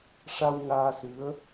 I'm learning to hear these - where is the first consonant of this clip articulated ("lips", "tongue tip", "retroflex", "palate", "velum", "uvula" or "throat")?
retroflex